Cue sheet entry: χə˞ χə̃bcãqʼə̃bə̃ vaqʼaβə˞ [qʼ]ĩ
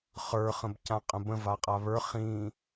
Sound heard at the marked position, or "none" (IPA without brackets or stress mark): χ